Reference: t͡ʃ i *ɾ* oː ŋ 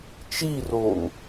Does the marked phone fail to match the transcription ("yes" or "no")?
yes